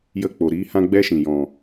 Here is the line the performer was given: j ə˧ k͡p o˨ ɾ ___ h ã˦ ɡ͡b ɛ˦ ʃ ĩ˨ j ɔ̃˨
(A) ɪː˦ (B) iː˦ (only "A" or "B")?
B